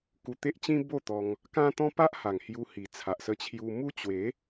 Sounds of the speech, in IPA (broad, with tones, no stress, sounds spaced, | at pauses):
k u˧ t̪ e˦ ʔ t͡ɕ ĩ˦ b o˥˧ t̪ ɔ˧ ŋ | k ã˦ t̪ ɔ̃˦ p a˦ ʔ h a˨˩ ŋ h j u˧ h i˨˩ t͡sʰ a˨ ʔ s ə˧ t͡ɕʰ j u˧ m u˦ t͡ɕ w e˨˦